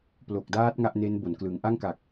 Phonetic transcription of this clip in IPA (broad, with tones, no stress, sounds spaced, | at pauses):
p l o˨˩ k̚ d aː˦˥ t̚ ŋ a˦˥ ʔ n e˦˥ n b o˩˦ n k l ɯ˩˦ ŋ ʔ a˥˩ ŋ k a˨˩ k̚